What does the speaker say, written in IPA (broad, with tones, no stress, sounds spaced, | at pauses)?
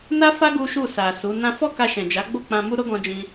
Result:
n a˦ f a˦ ɡ u˦ ʃ u˦˨ s a˨ s u˨˦ n ã˦ f ɔ˦ k a˧ ʃ ɛ̃˨ d͡ʒ a˨˦ ɡ͡b o˦˨ k͡p ã˧ m u˦ ɾ o˦ ɡ ɔ̃˧ d͡ʒ ĩ˧